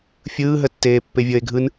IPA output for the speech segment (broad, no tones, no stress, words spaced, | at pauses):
fʲɯːɦə tːeːpːevʲəːe̯ɡʱɯn